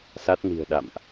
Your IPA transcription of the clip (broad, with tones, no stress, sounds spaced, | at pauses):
s a˦˥ t̚ n i̤˨˩ ə̯ ɗ a̰˧˨ m ʔ